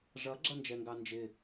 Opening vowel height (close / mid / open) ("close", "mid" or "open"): mid